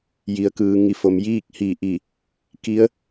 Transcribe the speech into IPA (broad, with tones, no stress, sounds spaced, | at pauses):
j i˩˧ ə̯ k ɯː˩˧ ŋ i˩˧ f o˩˧ m j iː˥˨ k̚ h i˧˩ ʔ i˧˩ | k i˧˥ ə̯